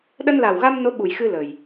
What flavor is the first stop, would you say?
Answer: implosive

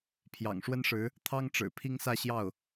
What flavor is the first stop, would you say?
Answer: aspirated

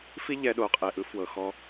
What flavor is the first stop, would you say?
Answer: implosive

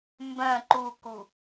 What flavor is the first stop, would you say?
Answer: plain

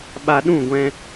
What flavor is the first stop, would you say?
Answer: implosive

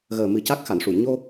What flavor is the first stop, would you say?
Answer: plain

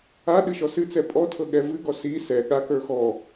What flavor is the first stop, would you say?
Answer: implosive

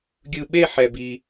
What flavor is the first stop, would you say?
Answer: plain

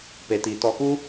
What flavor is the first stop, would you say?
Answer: plain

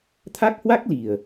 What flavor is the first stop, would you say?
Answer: aspirated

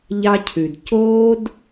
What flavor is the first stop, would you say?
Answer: aspirated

